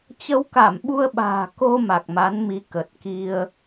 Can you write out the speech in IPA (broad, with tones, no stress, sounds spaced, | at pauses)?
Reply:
t͡ɕ ə˧ w k a˧˩ m ɓ u˧ ə̯ ɓ a̤ː˨˩ k o˧ m a˨˩ k̚ m a˨˦ n m i˨˦ k ə˨˩ t̚ k i˧ ə̯